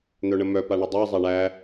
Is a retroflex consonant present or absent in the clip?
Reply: present